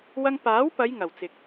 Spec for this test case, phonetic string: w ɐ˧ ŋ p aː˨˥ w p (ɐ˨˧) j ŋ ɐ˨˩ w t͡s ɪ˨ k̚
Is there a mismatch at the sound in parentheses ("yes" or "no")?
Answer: no